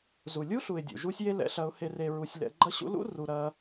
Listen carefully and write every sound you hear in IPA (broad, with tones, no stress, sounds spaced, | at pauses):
z u˨ lʲ u˦ ɬ u˨ ɪ̯ dʲ ṵ˨ ʒ u˦ sʲ j e˦ l ɛ̰˧ ɬ ɐ˧ ʊ̯ h e˧ r e˧ ɹ u˧ sʲ l ɛ̰˧ ɡ͡ǃ ɐ˦ ɕ ṵ˦ l ṵ˦ r u˧ ɾ ɐ˦